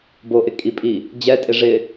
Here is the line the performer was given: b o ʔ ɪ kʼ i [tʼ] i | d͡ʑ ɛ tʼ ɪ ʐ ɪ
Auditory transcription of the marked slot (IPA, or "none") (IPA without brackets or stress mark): pʼ